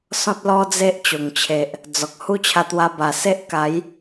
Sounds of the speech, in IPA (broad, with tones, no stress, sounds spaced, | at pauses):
s ɔ̃˦ t̚ l ɔ˦ d͡z e˦ ʔ t͡ɕ o˨˩ ŋ t͡ɕʰ e˨ ʔ | d͡z ɔ˨ k̚ h u˦ t͡ɕʰ a˧ t̪ w a˧ b a˨˩ s e˦ ʔ k a˨˦ j